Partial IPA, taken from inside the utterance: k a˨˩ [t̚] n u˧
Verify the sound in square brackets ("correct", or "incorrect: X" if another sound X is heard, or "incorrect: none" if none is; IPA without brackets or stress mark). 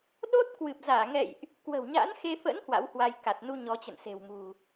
correct